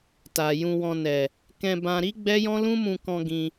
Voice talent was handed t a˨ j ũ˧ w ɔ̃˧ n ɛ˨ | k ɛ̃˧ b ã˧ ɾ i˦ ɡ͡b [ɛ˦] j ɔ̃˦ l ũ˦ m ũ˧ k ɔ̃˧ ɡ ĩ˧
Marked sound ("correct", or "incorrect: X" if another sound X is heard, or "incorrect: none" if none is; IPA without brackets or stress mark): correct